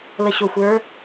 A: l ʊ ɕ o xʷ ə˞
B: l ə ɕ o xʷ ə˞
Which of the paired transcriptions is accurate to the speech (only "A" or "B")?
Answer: B